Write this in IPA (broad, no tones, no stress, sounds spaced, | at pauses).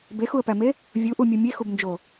b e x u ə̯ p æ m e | vʲ u ʔ u mʲ u mʲ e x u b n d͡ʒ o